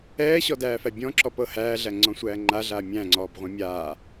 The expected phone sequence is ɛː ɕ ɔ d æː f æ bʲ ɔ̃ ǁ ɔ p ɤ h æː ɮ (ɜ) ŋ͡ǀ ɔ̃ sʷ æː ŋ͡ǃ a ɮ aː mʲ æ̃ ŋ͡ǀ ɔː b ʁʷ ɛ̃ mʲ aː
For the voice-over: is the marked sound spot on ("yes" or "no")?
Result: no